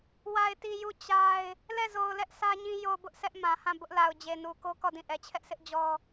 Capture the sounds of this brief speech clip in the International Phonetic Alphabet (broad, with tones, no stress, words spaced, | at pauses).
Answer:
wa˨ɪ̯ti˨ ju˦˨ t͡ɕa˦ɪ̯ | lɛ˦˨zo˨ʊ̯lɛ˦ʔ sʰä˦ɲĩ˦ jo˨bʊ˦ʔ sʰɛ˦ʔmã˨hã˦˨ bʊ˦ʔla˨ʊ̯ d͡ʑe˨nu˨ko˦ kɔ˦˨dĩ˦˨ ʔɛ˨t͡ɕʰɛ˦ʔsʰɪ˦ʔ d͡ʑɔ˦